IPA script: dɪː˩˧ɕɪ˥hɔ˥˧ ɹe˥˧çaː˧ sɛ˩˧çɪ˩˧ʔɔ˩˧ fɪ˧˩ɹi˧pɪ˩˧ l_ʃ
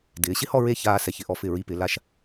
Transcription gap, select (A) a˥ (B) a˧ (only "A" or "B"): B